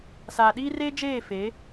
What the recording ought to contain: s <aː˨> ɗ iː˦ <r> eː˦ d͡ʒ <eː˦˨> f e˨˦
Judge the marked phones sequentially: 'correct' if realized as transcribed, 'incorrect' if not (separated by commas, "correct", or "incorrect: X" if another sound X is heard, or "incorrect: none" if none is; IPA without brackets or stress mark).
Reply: correct, correct, correct